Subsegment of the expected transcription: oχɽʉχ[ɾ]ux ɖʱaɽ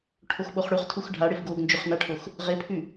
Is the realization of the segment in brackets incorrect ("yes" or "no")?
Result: yes